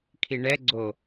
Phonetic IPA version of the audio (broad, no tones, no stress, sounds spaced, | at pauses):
kʰ i ɳ ɛ ɡ͡ǀ o